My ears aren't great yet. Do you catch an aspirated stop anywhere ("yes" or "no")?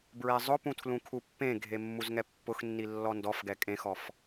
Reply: yes